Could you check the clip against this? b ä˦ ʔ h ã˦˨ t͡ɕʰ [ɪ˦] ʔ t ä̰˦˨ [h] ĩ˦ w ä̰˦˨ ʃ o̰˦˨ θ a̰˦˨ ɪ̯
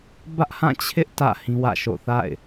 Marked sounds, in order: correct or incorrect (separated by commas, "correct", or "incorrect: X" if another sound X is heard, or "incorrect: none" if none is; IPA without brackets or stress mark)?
correct, correct